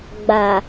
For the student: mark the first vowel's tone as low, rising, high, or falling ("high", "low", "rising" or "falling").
low